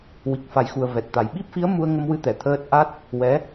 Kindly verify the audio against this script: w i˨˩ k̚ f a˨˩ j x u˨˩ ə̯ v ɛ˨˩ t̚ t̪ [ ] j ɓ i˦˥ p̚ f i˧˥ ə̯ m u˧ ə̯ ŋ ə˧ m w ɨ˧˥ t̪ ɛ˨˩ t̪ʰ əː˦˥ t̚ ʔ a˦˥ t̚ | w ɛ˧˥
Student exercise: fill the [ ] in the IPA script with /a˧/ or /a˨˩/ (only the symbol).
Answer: a˨˩